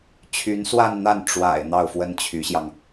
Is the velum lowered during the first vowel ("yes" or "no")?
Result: no